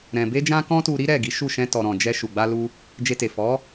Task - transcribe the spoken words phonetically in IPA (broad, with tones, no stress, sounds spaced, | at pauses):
ɾ ɛ̃˧ b e˦ d͡ʒ ã˦ k ɔ̃˦ t u˧ ɾ i˦ ɾ ɛ˦˨ ɡ i˨˦ ʃ u˦˨ ʃ ɛ̃˧ t ɔ˨ ɾ ɔ̃˨ d͡ʒ ɛ˧ ʃ u˨ ɡ͡b a˧ l u˧ | d͡ʒ e˧ t e˨ f ɔ˨˦